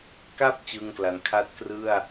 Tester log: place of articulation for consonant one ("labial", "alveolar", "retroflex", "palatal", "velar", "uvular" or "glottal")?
velar